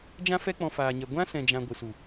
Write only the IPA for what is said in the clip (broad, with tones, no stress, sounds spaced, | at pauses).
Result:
d͡ʒ ã˦ f ɛ˦ k͡p ɔ̃˧ f aː˧ ɲ ɛ˧ ɡʷ ã˦ s ɛ̃˧ d͡ʒ ã˧ ɡʷ ɨ˨ s u˨